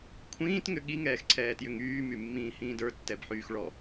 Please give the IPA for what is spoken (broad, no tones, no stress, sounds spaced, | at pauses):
kʷʰ ĩː t ŋ ʏ ɠ i ŋ ɛː x ǀʰ ɛː t j ʏ ŋ yː m y mː ĩː h ĩː d ə˞ tː ɛ b ħ yː x ɭ ɔ